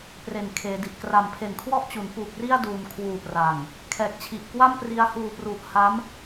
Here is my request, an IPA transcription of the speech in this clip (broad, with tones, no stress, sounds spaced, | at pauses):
p r e˨˩ n kʰ eː˩˦ d i˨˩ ʔ k r a˨˩ m pʰ e˨˩ n kʰ w ɔ˦˥ ʔ t͡ɕ u˩˦ n p u˨˩ k̚ r i˥˩ a̯ d uː˨˩ n kʰ w uː˨˩ p r a˨˩ ŋ | kʰ ɛː˨˩ k̚ t͡ɕʰ i˨˩ ʔ k w a˥˩ m p r i˧ a̯ h uː˨˩ p r u˨˩ ʔ h a˦˥ m